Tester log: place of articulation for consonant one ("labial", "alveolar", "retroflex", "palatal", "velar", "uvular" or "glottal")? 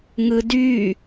velar